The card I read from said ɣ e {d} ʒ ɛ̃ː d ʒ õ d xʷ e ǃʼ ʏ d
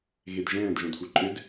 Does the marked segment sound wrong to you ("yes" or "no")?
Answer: no